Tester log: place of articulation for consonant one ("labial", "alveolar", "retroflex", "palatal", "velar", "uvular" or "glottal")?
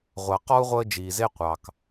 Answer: uvular